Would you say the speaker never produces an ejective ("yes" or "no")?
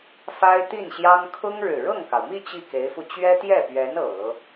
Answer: yes